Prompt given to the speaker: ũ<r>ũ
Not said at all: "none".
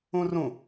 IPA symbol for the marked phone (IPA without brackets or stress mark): r